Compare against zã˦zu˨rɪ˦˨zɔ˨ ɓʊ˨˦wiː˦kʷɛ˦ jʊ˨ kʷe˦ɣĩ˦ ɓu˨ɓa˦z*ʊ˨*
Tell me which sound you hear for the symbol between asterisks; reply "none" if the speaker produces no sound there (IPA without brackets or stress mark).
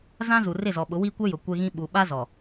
ɔ˨